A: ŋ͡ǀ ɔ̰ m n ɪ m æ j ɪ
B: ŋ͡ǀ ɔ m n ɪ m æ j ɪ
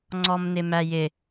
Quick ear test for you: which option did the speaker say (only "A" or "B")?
B